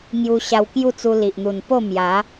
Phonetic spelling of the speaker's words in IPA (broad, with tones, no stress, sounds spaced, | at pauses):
ŋ j u˧ ɕ a˧ w k j u˥˧ t͡s u˧ l i˨ ʔ n̪ u˨˩ n p o˥˧ m j a˨˦